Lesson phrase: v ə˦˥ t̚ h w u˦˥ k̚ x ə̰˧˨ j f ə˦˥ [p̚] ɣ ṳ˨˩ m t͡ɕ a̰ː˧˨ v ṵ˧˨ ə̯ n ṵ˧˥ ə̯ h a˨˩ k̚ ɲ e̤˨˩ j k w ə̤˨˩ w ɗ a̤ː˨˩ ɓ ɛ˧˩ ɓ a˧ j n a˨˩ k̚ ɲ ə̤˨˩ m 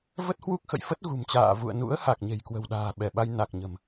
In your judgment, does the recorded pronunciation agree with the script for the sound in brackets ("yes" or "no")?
no